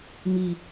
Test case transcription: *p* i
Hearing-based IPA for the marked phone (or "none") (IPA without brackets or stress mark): m